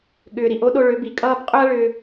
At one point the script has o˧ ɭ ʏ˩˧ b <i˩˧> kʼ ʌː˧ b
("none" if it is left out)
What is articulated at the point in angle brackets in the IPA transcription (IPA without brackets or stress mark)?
i˩